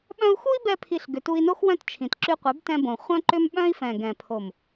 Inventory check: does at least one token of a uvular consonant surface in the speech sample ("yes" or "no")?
yes